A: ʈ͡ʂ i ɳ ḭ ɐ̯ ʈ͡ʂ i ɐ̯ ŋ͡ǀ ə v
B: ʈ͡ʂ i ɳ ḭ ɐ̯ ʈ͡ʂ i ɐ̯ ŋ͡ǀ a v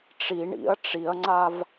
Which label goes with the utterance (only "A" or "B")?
B